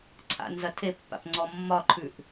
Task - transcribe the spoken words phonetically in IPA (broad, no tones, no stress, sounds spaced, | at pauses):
ǀʰ a̰ n z ɐ tʰ e pː a̰ p ŋ͡ǀ ɔ mː ɒ ǃʰ ʉ ʔ